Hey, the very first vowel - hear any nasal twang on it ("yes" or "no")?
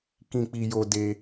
yes